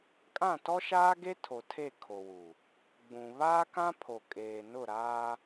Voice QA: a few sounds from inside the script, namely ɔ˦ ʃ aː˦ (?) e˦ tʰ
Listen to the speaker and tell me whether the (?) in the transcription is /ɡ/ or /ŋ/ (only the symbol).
ɡ